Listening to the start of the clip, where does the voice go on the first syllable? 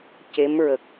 rising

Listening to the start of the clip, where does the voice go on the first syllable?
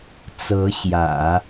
rising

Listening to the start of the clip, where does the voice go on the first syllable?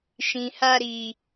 low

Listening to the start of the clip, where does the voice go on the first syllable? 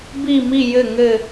falling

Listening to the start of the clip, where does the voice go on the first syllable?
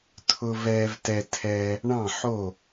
high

